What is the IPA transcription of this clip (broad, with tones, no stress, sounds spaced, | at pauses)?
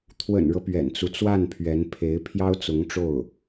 t̪ʰ w ə̰˨˩ n ɻ ɤ˦ p ɥ ɛ̰˨˩ n t͡s u˦ t͡s w a˥˩ n pʰ ɥ ɛ˧˥ n pʰ e˧˥ ɪ̯ pʰ j ɑ˥ ʊ̯ t͡s ʊ˧˥ ŋ ʈ͡ʂ o˥˩ ʊ̯